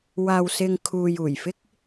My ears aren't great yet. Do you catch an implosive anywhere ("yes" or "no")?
no